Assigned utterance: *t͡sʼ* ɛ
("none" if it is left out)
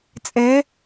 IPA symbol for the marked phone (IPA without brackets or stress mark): t͡sʼ